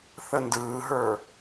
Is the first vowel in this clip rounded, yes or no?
no